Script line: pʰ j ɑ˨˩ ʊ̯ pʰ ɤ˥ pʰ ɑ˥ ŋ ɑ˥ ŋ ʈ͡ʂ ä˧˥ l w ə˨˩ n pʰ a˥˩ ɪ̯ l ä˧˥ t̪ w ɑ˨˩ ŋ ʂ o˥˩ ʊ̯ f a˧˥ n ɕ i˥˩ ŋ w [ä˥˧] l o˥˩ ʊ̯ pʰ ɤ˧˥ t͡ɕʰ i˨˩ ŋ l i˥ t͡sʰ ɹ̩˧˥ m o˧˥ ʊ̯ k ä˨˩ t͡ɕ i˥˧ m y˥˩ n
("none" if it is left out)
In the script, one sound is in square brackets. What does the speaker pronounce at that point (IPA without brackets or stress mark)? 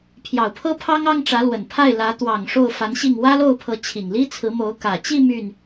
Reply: ä˥